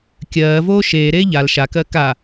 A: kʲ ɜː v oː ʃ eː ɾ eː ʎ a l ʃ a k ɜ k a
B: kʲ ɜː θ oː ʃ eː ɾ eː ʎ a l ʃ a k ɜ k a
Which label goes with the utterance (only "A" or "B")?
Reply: A